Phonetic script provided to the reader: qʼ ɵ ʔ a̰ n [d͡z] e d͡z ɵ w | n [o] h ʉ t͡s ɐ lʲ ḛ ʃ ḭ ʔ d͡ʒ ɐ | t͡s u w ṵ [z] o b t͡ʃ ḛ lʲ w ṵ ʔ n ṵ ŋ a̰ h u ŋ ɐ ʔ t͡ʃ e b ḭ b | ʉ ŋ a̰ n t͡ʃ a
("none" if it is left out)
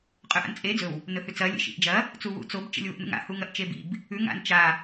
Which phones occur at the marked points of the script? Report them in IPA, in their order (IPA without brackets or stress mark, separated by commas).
t͡sʼ, ɵ, t͡s